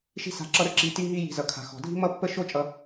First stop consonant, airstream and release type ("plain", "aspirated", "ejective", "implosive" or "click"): click